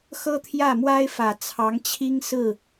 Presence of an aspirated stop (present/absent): present